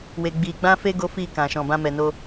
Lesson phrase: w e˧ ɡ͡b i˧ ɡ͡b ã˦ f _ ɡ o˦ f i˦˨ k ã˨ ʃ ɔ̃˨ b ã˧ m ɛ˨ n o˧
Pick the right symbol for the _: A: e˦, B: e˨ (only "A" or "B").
A